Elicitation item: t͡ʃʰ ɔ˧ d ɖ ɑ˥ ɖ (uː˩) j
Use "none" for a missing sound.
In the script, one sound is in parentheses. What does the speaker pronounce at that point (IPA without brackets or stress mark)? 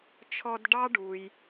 uː˩